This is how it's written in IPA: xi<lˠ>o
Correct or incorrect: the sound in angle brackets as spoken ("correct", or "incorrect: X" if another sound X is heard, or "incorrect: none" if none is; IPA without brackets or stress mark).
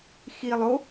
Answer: correct